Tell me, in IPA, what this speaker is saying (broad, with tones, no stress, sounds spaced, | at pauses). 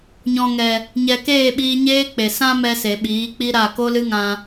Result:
ɲ ɔ̃˨ ŋ ɛ˨ | ɲ ɛ˨ k eː˦˨ ɓ iː˧ ɲ eː˦ k͡p e˨ s ã˧ m ɛ˧ s e˨ ɓ iː˨˦ k͡p i˦ ɾ a˦˨ k o˦ l ɨ˦ ŋ ã˧